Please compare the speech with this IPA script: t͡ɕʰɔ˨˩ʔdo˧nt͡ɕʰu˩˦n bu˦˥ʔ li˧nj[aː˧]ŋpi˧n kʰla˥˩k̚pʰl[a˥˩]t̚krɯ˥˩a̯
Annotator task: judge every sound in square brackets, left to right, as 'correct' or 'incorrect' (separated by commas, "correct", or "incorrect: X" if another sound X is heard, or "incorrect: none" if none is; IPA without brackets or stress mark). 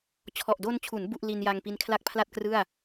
incorrect: a˧, correct